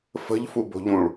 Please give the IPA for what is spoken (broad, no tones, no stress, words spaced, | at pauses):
fə̤ʎ fubo̤ʎũɭ